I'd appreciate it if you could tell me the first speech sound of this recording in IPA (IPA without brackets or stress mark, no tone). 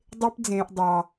dˤ